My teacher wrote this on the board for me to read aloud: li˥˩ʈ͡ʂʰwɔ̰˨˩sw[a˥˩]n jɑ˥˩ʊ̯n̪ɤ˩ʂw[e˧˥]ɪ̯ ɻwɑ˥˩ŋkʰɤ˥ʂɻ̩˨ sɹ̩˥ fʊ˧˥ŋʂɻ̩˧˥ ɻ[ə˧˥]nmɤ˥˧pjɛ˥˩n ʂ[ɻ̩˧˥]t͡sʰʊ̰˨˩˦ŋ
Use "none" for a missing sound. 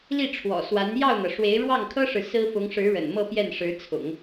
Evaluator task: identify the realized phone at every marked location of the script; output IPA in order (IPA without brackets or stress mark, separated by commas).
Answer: a˧˥, e˧˥, ə̰˨˩, ɻ̩˧˥